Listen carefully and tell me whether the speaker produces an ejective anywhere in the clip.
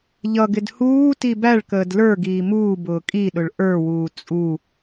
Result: yes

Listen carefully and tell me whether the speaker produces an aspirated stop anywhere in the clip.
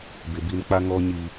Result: no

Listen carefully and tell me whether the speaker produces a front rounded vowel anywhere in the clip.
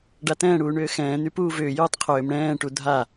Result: yes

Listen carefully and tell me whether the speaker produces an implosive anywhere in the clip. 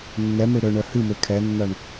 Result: no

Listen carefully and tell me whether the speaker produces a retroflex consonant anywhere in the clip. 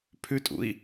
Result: no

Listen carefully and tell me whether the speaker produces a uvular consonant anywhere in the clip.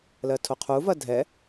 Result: yes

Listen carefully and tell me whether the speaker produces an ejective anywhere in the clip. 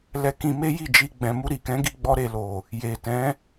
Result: no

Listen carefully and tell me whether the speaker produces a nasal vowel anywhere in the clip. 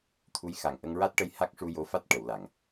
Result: no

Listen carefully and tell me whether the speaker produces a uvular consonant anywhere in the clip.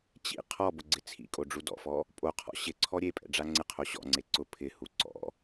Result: yes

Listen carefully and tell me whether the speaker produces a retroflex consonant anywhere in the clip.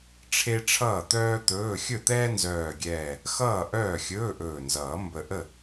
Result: yes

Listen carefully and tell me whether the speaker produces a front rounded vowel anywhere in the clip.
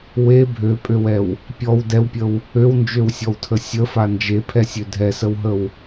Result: yes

